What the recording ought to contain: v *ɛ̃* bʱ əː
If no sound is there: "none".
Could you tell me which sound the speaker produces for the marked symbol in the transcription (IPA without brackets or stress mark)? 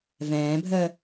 ɛ̃ː